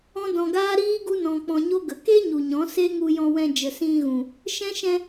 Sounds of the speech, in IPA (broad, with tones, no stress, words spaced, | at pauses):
ɔ̃˦dɔ̃˧ɡaː˦ɾiː˦ ɡu˦nɔ̃˧k͡pɔ̃˧ɲo˦ ɡə˨ke˦ɲu˨ ɲɔ̃˨˦se˦ ŋu˧jɔ̃˧wɛ̃˧ d͡ʒə˨sĩ˧ ɣũ˨ | ʃɛ̃˦ ʃɛ̃˧